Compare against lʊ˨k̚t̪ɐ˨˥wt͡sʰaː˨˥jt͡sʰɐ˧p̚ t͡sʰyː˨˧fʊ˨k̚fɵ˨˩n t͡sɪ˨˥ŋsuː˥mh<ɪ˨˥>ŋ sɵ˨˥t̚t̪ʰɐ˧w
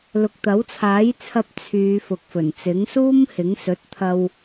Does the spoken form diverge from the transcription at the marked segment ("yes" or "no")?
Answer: no